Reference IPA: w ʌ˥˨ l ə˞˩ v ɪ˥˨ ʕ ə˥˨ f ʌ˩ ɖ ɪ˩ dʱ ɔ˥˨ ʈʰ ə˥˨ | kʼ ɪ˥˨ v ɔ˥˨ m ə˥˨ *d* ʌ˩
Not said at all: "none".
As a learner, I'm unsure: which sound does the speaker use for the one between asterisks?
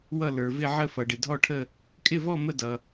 d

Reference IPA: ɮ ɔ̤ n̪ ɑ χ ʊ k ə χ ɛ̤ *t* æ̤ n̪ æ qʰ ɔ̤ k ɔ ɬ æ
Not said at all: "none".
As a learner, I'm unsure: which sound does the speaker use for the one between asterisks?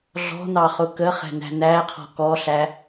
n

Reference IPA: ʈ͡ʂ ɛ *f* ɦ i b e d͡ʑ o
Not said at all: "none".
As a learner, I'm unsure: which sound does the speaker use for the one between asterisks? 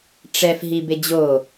f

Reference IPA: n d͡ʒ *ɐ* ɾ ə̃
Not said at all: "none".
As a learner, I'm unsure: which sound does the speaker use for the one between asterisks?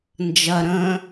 ɐ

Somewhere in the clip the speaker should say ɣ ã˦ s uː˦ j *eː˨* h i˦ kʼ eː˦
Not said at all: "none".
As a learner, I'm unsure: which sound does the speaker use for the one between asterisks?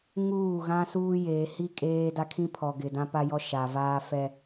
eː˨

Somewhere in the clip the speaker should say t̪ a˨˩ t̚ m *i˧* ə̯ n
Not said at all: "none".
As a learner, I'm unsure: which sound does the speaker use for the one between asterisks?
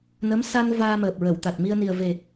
i˧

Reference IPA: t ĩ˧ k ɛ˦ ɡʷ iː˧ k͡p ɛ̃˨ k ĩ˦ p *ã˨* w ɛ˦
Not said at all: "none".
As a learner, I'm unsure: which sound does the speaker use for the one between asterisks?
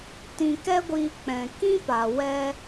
a˨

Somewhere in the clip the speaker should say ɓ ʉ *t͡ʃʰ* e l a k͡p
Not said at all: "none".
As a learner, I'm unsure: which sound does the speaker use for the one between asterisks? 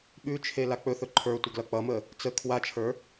t͡ʃʰ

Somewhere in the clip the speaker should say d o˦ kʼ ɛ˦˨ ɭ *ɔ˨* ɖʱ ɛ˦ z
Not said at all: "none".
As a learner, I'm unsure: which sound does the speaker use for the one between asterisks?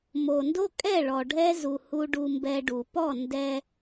ɔ˨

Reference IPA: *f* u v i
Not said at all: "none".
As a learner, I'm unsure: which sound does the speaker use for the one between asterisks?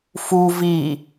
f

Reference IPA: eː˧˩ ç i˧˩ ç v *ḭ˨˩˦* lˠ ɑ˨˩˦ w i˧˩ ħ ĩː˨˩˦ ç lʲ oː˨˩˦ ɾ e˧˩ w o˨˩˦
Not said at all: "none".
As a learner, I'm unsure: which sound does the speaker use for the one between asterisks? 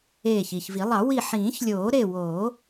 i˨˩˦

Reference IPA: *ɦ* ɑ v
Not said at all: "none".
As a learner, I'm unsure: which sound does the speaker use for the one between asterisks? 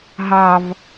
ɦ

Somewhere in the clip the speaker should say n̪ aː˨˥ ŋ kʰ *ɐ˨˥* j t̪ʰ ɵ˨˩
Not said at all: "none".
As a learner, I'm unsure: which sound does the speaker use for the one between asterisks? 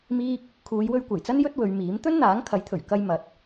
ɐ˨˥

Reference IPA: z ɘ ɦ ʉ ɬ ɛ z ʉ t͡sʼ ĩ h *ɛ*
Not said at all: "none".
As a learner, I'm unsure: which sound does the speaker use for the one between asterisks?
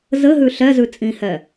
ɛ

